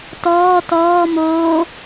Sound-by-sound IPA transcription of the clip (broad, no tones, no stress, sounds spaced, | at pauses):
t ɔː t ɔː m oː